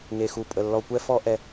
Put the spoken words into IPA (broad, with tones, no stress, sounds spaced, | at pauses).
ŋ e˨ x u˨ pʼ ə˨ lː ɔ˨ kʷ ɛ˦ f ɔ˦ ʔ ɛ˦